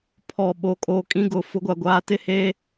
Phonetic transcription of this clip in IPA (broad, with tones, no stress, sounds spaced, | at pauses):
pʰ ɔ˨ ɓ o˨ kʼ o˨ kʼ ĩ˦ ɡ ʊ˨ f ʊ˦ ɡʷ a˨ ɡʷ aː˦ t ɪ˦ h eː˦